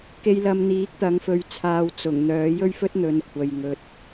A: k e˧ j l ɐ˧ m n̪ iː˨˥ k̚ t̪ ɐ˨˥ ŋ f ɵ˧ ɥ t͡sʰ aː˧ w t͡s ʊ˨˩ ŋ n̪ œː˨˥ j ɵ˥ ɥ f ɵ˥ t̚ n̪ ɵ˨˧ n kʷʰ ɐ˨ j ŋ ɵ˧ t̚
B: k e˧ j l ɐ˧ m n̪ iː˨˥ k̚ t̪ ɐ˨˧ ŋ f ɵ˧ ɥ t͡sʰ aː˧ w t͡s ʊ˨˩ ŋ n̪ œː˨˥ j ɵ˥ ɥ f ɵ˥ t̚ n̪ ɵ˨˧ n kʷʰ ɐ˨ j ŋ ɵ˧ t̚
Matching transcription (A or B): A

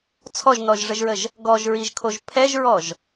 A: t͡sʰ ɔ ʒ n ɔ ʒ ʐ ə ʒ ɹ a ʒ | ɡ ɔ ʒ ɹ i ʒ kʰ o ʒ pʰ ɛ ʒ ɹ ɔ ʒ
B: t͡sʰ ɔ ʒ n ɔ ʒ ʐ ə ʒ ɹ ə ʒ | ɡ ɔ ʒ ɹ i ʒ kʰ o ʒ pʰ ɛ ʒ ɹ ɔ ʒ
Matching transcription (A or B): B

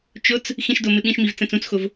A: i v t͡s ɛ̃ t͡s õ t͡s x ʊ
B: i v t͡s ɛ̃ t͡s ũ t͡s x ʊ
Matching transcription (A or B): B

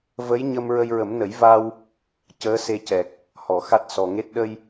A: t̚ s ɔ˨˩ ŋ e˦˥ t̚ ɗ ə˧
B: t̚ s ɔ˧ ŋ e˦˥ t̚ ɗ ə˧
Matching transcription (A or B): A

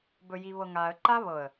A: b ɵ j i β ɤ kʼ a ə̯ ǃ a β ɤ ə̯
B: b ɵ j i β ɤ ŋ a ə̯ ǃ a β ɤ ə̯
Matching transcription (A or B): B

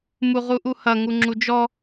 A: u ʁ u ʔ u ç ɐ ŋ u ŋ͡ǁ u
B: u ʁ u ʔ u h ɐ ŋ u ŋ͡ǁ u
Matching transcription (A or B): B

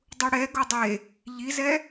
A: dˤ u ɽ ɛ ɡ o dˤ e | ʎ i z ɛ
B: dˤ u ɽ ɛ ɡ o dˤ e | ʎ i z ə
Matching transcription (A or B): A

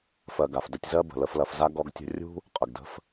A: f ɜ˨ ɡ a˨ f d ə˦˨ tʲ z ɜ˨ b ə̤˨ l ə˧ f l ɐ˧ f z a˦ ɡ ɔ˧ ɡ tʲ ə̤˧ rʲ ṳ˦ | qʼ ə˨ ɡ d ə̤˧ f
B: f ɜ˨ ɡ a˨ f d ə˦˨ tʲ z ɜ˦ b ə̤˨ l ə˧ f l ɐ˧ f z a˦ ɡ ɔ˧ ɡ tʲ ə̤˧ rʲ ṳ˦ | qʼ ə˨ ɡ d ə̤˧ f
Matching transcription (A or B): B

